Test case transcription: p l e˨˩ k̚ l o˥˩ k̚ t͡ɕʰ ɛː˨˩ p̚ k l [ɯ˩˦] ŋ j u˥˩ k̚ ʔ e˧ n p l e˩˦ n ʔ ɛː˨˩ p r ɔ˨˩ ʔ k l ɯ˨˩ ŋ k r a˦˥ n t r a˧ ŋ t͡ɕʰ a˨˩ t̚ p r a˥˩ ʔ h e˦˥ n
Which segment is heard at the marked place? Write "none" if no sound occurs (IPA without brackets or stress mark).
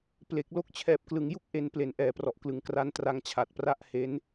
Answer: ɯ˩˦